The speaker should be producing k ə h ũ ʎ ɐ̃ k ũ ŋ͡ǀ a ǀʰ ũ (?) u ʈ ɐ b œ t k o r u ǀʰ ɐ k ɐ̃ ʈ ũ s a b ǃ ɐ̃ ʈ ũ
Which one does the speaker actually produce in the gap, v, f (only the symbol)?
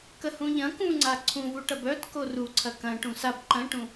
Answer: v